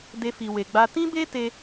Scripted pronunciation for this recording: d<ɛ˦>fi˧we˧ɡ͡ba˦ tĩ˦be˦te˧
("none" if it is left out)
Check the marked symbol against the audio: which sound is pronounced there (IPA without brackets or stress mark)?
e˦